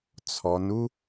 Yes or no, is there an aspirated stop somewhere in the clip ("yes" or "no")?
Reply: yes